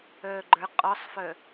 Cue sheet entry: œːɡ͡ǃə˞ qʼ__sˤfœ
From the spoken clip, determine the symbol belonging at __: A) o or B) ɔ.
B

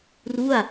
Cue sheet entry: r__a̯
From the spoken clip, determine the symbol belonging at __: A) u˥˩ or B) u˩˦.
A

